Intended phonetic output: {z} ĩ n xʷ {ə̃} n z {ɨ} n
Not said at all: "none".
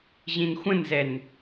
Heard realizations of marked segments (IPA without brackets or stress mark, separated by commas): ʑ, ə̃, ɛ